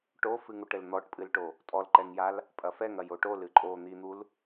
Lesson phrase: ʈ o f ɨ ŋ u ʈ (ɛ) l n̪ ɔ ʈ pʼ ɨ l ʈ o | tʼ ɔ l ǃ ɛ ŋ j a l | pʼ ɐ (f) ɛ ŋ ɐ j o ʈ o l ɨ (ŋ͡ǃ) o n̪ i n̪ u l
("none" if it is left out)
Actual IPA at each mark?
ɘ, f, ǃʼ

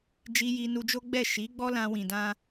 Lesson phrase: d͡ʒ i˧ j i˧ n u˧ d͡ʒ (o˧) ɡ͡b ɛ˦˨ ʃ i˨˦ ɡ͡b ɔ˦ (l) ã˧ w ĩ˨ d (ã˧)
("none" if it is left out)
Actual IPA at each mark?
o˦, l, ã˧

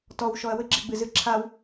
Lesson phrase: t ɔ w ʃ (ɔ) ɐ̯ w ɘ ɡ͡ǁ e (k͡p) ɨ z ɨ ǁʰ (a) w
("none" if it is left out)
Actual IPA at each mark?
ɔ, ɡ͡b, a

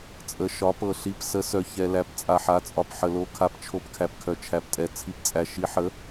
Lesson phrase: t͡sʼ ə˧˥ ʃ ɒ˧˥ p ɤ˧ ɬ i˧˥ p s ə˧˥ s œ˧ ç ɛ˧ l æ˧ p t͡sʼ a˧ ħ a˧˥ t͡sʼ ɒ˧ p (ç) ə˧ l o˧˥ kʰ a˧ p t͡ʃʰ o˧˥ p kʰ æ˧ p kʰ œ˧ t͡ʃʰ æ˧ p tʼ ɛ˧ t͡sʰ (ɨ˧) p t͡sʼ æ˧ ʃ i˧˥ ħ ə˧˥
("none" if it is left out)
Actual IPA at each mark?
ħ, i˧

